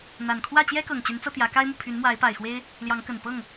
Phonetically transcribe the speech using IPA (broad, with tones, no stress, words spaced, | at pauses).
n̪a˨˩nkʰwä˥˨ t͡ɕjɛ˦kɤ˨˩ŋt͡ɕy˨˦nt͡sɤ˧ t̪jä˨˦ka˦ɪ̯mu˨ pʰy˨˦nmwa˨˦ɪ̯pa˨˩ɪ̯xwe˦ɪ̯ | ljɑ˨˦ŋkə˨˩npɤ˥˨ŋ